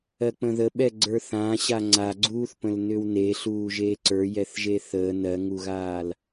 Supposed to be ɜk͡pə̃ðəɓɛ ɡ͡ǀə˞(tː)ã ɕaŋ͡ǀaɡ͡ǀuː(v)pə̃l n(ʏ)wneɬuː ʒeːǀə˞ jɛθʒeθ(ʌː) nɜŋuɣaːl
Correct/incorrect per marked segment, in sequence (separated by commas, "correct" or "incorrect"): incorrect, incorrect, correct, incorrect